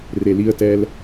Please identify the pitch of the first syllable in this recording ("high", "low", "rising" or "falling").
low